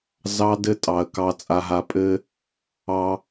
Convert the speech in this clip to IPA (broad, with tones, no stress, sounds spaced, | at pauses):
z ɑ˦ d ɘ˦ tʼ ɑ˨ ə̯ k ɑ˨ t͡sʼ a˨ ɦ a˨ pʼ ɘ˦ | ɑ˦